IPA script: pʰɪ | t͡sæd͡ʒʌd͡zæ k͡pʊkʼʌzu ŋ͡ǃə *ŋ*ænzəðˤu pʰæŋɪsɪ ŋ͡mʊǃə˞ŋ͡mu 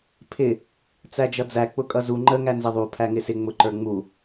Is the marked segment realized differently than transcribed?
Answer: no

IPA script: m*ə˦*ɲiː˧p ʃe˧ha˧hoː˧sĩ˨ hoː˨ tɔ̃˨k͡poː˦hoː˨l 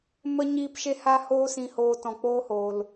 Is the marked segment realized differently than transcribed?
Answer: no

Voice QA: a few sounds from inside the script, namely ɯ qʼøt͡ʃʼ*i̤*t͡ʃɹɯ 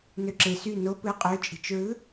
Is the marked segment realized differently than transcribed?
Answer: no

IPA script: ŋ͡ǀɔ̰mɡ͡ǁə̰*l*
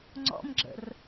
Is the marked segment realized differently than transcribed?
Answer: yes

